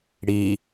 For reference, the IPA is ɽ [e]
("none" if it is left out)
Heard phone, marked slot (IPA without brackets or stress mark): i